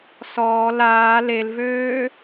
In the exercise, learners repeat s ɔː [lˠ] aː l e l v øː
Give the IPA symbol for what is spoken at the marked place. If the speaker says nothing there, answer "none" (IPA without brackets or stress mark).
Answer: l